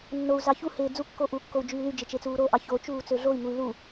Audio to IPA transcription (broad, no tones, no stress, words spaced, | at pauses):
nːou̯zɑ çuheː d͡zukːo ʔukːou̯ d͡ʒyːlyd͡ʒe t͡ʃet͡suːɾoʔɑ çot͡ʃuː t͡søɮoi̯ŋuy̯ lu